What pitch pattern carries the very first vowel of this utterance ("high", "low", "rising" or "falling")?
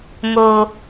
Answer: high